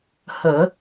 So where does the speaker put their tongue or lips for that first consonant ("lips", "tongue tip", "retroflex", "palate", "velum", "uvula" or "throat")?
throat